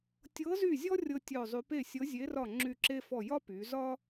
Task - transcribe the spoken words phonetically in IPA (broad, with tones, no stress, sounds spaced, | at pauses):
tʲ ɤ˧˥ z y˦˨ zʲ ɔ˥ rʲ ɤ˥ tʲ œ˦˨ zˤ y˧˥ p e˦˨ sʲ ɤ˧˥ zʲ e˧˥ r ɒ˦˨ ŋ͡ǁ y˦˨ ǁ e˥ f ɔ˦˨ j ɒ˥ p y˩˧ z ɒ˥